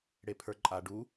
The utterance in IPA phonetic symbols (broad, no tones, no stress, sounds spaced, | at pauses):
ɽ e pʰ ə˞ ǃʼ a ɖ u